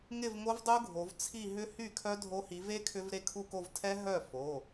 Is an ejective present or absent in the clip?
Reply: absent